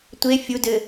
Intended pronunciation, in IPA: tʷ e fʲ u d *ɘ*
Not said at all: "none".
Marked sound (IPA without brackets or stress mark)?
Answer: ɘ